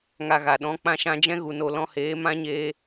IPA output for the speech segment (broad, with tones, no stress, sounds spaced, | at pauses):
ŋ a˧ ɣ a˨ ɗ ɔ̃˨˦ k͡p ã˧ ʃ ã˧ d͡ʒ ɛ̃˦ ɣ u˨ n o˨ l ɔ̃˧ h eː˨˦ m ã˦ ɲ eː˧